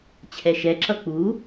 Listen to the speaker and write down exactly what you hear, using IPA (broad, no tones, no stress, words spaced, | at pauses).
t͡ɕʰɛʃɛǁʌ k͡pu